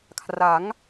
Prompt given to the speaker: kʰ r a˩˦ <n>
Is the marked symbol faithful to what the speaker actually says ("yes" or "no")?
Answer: no